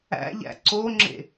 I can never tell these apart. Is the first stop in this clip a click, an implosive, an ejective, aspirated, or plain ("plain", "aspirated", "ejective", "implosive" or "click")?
click